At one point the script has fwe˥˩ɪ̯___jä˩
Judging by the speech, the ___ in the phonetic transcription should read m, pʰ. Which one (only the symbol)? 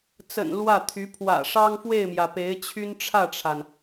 m